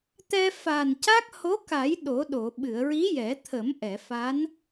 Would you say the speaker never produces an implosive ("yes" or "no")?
no